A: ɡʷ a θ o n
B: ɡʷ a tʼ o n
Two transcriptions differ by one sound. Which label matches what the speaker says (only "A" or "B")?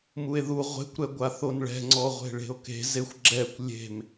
A